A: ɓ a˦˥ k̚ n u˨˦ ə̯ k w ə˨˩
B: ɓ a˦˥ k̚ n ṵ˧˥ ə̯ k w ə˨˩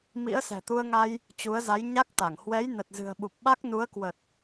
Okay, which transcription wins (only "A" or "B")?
A